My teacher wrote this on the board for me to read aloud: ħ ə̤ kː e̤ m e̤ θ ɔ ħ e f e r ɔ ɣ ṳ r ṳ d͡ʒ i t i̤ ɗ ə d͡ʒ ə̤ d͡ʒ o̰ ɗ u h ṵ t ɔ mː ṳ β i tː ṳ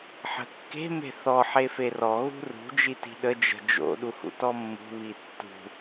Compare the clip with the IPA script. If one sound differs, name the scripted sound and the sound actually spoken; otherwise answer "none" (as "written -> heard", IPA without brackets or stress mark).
none